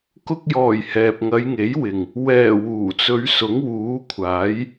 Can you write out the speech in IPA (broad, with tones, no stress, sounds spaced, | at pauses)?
k ʊ˧ k̚ j ɔː˨˩ j h ɛː˨ p̚ ŋ ɐ˨˧ j ŋ e˨˥ j w ɪ˨ ŋ | w ɛː˨˩ w uː˨˩ t͡s ɵ˨˧ ɥ s ʊ˨˥ ŋ w uː˨˥ kʷʰ aː˨˥ j